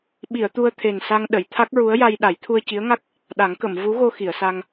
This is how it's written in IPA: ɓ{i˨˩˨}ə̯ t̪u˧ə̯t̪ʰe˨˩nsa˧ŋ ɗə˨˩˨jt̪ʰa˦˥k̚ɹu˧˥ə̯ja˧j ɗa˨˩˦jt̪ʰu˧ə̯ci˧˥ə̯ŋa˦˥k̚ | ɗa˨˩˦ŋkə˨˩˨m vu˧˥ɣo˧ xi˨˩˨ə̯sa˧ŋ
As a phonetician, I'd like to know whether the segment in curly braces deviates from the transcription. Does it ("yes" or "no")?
no